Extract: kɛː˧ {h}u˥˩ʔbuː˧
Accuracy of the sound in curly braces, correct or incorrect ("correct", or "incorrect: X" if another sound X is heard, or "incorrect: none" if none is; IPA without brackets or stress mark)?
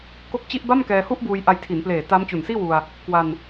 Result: correct